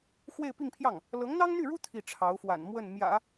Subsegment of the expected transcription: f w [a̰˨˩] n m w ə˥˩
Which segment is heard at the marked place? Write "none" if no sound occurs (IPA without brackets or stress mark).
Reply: a̰˨˩